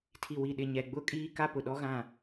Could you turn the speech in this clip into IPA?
tʰi˨wi˨ ɗɪ˨ɲɛ˨ɡ͡bʊ˦˨kʼiː˦ ka˦pʊ˨ɗɔ˦ɣã˦˨

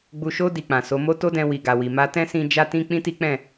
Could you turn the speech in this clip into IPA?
ɡ͡bu˨ʃo˧ di˨k͡pã˨so˨˦ mo˦to˦dɛ̃˧ wi˨ɡa˨wi˨ ma˧tɛ̃˦ sĩ˧ d͡ʒa˦tĩ˦ k͡pĩ˦ti˦k͡pɛ̃˦˨

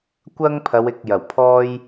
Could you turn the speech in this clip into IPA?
kʷɐ˥ŋpʰɐ˨˧wɪ˨k̚ jɐ˨˩wpʰɔː˥j

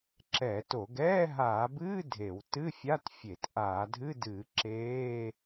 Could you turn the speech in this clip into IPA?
ǁɛː˧˩˧to˧˩˧ɡ ɛː˧˥˧ɦaː˧˩˧bɨː˧˥˧ dʱe˧˩˧w tɨ˧˥˧fʲa˧˥˧t fʲe˧˩˧t ʔaː˧˩˧dʱɨ˧˥˧dɨː˧˩˧ ǁeː˧˥˧

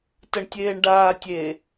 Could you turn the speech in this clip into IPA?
təɳtʲeːɳɖaː tʲe

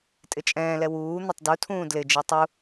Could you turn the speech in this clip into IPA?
tʼɪt͡ʃʼɛ̃ːlɛ wuː n̪ɪtˤdutʰũː dlɪd͡ʒi tˤu

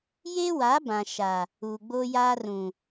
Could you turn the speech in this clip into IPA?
je˦wa˨˦ bã˨ʃa˨ | uː˨ɡ͡boː˦jaː˦ rũ˨

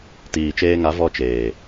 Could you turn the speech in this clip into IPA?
tiː˨t͡ʃeː˧ŋa˨˦ vɔ˧t͡ʃeː˨

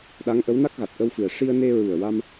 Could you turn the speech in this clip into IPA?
ɗa˧˥ŋʔə˧˥w na˦˥k̚ɣa˨˩t̚ʔə˧wfɨ˨˩ə̯ ʂi˧ə̯ne˧ɹu˨˩ə̯wa˧m

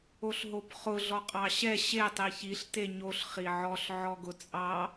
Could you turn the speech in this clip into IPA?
oɬɦopχʊ ɮɔqʼɑɕɛ ɕe tˤiçiɬ teɲoɬ χiʕɔɬ ʕɔɡʊt͡sʼɑ

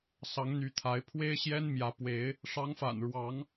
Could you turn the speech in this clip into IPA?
sɑ˨˦ŋn̪y˨˦t̪ʰa˨˦ɪ̯ pʰwe˦ɪ̯ɕjɛ˦nmjä˨˦ pwe˨˦ɪ̯ | ʂɑ˨˦ŋfa̰˨˩nɻwɑ˨˦ŋ

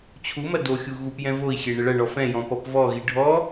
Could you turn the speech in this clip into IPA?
t͡ɕʰumɐ doxʲu ɣup jɛ̃voi̯xʲe ɳɘɭɐɳɔ fɛ̃jɔ̃ pɔpvɔɣi ɖʱɔ

